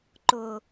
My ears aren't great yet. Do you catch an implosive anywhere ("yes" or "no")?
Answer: no